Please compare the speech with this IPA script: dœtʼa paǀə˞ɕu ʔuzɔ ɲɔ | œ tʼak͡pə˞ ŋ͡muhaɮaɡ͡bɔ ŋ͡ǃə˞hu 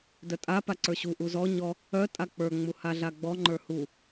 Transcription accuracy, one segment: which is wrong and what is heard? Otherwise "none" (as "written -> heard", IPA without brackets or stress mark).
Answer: none